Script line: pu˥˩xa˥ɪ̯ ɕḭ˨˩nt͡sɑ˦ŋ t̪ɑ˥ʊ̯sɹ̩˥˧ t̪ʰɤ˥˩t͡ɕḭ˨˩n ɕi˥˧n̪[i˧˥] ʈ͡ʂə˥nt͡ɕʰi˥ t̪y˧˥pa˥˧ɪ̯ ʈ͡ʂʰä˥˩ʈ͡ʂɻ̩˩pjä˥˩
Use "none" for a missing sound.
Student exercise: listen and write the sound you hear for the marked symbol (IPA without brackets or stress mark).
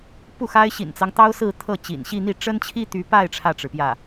i˥˩